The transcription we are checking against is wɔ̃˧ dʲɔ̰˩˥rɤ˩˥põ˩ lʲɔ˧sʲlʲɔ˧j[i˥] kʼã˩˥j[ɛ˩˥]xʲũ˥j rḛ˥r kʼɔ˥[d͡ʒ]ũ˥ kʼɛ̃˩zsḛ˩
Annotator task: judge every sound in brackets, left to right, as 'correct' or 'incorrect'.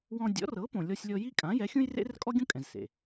correct, correct, incorrect: ɡʲ

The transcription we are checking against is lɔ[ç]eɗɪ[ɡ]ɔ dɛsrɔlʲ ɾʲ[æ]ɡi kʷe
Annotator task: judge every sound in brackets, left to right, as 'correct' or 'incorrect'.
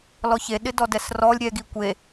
correct, incorrect: d, incorrect: ɛ

